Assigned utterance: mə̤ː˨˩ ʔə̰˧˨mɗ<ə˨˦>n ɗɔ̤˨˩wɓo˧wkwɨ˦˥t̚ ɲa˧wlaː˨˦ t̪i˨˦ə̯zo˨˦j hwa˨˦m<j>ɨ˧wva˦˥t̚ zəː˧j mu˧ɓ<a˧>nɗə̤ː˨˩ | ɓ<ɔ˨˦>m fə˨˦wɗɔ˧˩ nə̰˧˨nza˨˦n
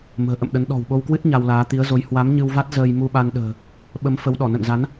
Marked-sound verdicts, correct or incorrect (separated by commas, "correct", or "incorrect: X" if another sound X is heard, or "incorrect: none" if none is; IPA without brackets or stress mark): correct, incorrect: ɲ, correct, incorrect: ə˨˦